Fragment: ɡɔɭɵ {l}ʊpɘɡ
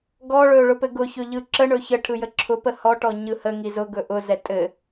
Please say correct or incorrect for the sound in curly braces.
incorrect